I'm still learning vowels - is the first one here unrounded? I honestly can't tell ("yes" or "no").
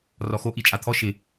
no